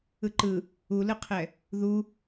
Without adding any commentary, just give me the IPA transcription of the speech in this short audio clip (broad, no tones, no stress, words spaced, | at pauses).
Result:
ɯǃɯ | ulɯqʰɛ | ðu